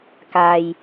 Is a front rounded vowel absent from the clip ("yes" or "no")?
yes